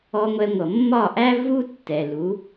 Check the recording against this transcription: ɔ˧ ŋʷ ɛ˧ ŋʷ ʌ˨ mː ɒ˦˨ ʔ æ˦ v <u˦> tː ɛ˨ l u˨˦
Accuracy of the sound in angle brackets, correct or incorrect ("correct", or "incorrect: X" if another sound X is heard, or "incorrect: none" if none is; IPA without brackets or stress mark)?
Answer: correct